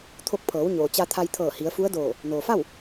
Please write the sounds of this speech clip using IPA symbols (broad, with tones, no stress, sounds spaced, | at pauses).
t̪ʰ o˧ k̚ pʰ ɤː˩˧ w ɲ oː˩ t͡ɕ a˧ t̪ʰ a˧ j t̪ʰ ɤː˧˩ h i˩˧ ə̯ f u˧˥ ə̯ d oː˧˩ | n oː˩ f a˥˨ w